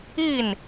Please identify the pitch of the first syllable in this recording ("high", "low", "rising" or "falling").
falling